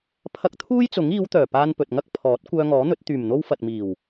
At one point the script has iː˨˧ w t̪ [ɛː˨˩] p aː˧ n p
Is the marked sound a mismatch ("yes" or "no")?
yes